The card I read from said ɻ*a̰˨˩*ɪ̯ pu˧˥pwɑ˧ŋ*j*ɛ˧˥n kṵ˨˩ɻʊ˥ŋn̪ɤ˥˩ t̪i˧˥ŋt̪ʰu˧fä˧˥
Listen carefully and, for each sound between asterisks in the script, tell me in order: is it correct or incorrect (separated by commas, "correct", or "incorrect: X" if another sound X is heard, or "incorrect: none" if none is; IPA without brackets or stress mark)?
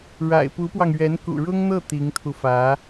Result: correct, incorrect: ɥ